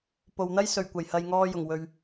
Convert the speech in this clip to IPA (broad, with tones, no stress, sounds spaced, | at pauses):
p o˨ w n̪ ɐ˥ j s ɵ˨˩ ɥ kʷ ɐ˨˩ j h ɐ˨ j ŋ ɔː˧ j ʊ˨˩ ŋ w ɵ˨ ɥ